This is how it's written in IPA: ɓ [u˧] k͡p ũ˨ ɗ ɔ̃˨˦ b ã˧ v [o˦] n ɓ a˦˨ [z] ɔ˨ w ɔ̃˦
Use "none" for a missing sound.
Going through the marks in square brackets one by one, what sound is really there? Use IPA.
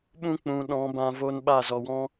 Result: ũ˧, o˦, z

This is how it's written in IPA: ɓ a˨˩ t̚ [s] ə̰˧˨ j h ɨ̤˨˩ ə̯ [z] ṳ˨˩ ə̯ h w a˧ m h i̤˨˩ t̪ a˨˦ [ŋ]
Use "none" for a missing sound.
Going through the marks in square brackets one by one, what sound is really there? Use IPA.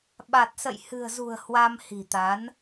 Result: s, z, n

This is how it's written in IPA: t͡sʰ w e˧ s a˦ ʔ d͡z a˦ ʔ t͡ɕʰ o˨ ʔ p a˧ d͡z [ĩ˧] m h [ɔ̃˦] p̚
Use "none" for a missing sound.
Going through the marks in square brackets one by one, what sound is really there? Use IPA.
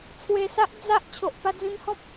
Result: ĩ˧, ɔ̃˦

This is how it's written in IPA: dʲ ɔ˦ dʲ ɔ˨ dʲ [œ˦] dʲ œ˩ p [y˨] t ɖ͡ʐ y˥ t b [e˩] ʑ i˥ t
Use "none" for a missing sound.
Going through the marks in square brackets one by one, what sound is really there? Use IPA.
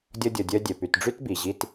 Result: œ˦, y˨, i˩

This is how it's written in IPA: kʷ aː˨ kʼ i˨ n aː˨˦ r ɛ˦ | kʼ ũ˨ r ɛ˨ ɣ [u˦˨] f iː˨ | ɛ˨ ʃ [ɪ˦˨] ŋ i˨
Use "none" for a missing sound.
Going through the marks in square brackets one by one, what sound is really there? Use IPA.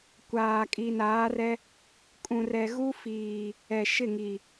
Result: u˦, ɪ˦˨

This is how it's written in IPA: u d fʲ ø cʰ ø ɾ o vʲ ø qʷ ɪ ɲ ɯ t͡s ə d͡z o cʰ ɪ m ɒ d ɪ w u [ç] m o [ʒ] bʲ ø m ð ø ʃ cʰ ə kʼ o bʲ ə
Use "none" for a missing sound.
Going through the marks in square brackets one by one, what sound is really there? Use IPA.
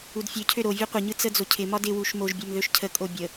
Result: ʃ, ʒ

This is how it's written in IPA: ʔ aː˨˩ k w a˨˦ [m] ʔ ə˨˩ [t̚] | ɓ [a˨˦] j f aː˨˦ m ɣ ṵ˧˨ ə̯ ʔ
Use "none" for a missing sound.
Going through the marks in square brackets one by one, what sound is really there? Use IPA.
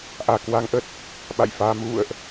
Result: ŋ, t̚, a̰˧˨

